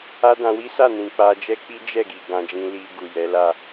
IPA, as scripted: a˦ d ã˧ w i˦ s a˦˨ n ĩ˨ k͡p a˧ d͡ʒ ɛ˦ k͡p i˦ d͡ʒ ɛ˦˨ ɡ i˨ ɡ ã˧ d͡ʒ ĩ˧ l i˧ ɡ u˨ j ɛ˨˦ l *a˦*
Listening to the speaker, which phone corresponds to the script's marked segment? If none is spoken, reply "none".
a˦˨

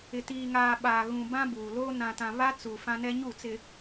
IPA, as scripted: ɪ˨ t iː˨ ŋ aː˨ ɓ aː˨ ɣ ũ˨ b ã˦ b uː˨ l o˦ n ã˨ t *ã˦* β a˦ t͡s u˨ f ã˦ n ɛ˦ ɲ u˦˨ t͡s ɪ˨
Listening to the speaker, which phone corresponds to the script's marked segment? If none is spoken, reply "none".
ã˨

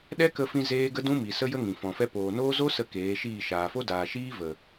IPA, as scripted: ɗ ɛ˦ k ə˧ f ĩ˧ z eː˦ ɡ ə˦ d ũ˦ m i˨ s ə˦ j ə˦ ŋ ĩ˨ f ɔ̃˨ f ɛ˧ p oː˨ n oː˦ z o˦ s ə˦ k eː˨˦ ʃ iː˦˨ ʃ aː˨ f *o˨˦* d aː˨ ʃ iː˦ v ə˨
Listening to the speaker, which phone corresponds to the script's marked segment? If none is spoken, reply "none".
o˦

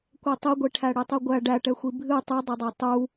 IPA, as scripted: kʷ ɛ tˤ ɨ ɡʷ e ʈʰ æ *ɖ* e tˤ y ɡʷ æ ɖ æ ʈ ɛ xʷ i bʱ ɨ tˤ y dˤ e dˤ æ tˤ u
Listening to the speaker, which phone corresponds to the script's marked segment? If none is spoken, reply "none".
ɽ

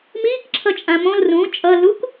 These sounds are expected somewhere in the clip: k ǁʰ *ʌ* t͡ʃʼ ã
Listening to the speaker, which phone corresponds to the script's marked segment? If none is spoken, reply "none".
ʌ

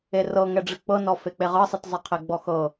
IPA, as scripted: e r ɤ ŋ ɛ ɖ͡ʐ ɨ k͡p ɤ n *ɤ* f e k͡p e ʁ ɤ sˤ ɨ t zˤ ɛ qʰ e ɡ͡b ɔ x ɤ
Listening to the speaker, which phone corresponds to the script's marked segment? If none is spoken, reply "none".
ɔ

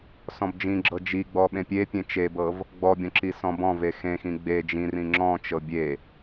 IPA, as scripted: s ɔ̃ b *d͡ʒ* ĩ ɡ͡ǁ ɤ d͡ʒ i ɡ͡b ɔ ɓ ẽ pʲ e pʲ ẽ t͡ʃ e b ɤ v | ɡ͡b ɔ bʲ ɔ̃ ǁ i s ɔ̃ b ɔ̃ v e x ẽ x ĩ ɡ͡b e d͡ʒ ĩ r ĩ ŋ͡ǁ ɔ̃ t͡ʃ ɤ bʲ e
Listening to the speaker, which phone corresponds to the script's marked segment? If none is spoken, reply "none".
d͡ʒ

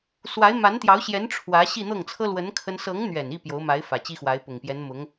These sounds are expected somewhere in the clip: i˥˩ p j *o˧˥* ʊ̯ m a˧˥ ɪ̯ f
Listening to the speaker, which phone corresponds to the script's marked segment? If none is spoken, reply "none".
o˧˥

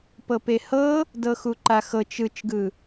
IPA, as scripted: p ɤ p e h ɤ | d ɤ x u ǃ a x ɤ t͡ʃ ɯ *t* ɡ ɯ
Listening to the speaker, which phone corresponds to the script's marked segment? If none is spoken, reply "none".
t͡ʃ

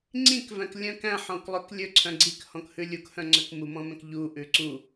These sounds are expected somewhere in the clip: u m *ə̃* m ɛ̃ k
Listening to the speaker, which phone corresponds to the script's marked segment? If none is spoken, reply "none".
ɔ̃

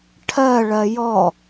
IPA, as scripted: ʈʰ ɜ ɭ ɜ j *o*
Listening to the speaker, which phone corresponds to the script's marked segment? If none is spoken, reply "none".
ɔ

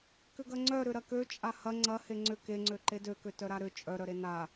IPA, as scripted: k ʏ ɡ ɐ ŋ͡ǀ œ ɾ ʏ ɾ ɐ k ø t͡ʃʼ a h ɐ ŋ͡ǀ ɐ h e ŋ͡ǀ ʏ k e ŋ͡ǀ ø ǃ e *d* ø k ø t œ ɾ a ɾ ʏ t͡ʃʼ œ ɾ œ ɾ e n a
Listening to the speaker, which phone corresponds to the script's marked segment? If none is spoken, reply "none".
d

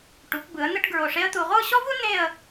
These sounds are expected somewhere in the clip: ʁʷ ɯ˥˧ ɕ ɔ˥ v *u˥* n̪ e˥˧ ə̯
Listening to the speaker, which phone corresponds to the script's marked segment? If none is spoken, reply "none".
u˥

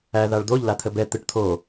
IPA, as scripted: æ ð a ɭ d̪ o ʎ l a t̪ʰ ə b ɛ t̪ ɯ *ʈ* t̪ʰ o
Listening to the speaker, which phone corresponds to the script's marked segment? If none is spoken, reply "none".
ʈ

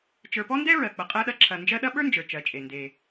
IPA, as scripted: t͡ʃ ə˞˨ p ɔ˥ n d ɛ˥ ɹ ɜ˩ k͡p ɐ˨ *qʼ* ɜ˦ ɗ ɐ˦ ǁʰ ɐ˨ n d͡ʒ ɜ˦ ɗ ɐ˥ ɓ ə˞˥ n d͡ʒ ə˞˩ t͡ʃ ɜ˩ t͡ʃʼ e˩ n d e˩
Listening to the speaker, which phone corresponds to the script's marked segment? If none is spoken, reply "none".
qʼ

